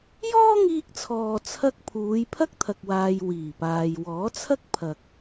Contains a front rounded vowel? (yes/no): no